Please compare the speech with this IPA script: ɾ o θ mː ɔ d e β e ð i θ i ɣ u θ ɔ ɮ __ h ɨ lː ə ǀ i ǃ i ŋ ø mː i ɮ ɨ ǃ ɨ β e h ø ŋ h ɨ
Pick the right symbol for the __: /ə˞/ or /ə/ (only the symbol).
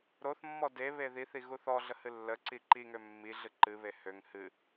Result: ə